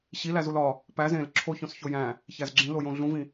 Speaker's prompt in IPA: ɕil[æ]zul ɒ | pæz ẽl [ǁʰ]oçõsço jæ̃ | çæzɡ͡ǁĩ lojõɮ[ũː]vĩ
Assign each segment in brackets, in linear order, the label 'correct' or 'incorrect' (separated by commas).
correct, correct, incorrect